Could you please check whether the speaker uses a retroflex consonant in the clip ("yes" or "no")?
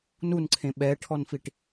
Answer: yes